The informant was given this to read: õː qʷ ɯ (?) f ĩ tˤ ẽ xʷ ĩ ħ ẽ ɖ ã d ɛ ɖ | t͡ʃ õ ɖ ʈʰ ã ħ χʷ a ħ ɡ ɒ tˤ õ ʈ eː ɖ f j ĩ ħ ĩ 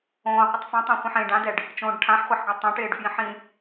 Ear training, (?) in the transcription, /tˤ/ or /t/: tˤ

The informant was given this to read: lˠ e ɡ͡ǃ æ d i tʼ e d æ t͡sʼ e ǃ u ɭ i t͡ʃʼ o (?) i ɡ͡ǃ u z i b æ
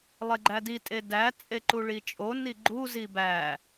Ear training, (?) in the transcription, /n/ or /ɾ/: n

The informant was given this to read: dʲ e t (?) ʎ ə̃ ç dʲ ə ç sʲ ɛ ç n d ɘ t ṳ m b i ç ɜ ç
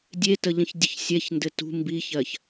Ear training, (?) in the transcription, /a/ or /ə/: ə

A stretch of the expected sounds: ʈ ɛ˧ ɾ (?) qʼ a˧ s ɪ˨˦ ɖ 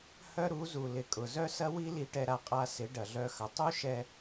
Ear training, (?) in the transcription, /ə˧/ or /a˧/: a˧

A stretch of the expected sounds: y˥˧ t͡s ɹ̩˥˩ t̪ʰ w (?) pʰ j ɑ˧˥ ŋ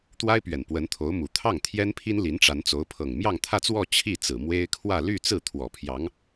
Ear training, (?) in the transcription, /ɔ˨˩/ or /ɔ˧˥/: ɔ˨˩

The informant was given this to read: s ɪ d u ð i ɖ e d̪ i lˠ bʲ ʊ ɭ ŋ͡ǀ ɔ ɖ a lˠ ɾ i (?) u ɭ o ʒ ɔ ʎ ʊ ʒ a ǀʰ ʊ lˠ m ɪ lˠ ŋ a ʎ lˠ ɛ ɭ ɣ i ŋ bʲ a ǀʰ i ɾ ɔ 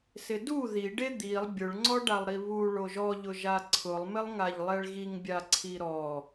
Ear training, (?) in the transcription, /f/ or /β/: β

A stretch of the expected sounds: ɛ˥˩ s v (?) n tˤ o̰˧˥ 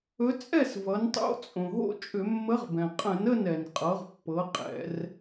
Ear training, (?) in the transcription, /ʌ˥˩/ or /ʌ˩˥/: ʌ˩˥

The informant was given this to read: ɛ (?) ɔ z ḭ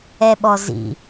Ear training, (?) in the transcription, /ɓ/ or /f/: ɓ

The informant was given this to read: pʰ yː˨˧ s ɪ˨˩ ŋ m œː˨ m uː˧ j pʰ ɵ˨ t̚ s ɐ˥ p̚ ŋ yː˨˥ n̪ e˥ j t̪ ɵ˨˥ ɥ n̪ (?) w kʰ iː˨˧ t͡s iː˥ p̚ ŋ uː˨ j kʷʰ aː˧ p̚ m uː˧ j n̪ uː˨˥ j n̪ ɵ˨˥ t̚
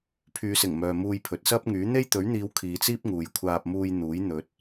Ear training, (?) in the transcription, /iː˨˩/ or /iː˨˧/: iː˨˧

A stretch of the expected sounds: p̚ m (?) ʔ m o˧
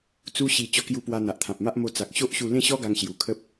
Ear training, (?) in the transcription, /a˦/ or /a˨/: a˦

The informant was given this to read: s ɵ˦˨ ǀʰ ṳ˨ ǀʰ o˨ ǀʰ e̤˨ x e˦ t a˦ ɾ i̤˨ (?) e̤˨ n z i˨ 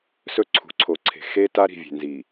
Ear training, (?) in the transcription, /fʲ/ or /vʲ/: vʲ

